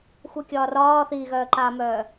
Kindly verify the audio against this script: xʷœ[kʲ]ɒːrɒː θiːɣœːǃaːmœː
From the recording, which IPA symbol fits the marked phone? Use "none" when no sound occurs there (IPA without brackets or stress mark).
kʲ